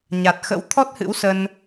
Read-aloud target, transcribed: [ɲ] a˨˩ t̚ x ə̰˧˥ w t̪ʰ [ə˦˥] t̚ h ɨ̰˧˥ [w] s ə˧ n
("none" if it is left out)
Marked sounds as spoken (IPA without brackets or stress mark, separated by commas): ɲ, ɔ˦˥, w